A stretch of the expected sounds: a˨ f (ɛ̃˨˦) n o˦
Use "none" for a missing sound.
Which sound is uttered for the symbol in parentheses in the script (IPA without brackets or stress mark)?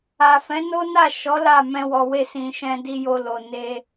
ɛ̃˨˦